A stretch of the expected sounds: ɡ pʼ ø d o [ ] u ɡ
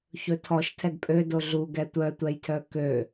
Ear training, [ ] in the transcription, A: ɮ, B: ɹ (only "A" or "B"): A